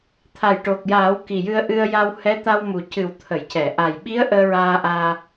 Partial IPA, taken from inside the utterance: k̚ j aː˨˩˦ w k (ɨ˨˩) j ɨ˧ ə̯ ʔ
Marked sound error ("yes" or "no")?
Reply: yes